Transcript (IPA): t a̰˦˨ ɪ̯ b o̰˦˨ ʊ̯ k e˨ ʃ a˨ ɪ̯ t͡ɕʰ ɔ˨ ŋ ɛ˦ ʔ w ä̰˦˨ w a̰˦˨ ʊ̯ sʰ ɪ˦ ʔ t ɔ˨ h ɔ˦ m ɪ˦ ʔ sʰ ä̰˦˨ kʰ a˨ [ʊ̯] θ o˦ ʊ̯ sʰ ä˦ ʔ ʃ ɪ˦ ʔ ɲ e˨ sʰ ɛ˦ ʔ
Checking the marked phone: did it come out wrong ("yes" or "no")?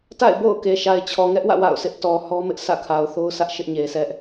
no